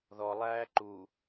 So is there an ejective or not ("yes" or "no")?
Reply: no